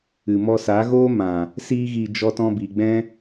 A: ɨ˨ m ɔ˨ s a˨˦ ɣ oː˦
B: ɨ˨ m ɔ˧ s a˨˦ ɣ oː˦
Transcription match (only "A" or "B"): B